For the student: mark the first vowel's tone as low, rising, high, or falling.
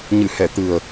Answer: low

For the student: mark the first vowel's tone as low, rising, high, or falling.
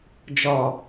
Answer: low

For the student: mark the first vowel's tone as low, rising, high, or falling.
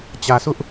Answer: low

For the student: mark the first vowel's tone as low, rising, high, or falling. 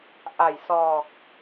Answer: low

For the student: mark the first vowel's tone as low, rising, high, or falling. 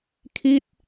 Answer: falling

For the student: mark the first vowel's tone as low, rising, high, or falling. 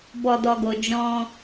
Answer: low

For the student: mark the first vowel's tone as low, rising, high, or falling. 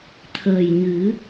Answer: low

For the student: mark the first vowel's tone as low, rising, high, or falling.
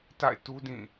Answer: falling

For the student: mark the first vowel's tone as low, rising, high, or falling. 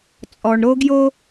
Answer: low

